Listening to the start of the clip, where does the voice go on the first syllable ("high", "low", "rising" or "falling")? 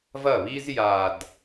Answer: falling